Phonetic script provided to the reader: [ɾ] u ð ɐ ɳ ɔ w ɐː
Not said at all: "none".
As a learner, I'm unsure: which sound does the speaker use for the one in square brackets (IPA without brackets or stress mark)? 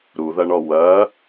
ɾ